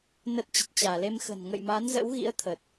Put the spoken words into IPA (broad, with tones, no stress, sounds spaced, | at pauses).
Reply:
n ə˦˥ t̚ t͡ɕ ə˨˩ t̚ t͡ɕ aː˧˩ l e˧ m x ə̤˨˩ n ŋ ə̰˧˨ j m a˨˦ n z ə̰˧˥ w ɣ ḭ˧˥ ə̯ t̪ʰ əː˨˩ t̚